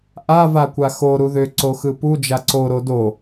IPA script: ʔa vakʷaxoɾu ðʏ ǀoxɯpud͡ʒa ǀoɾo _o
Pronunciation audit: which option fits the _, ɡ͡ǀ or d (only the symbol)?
d